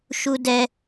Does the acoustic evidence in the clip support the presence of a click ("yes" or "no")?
no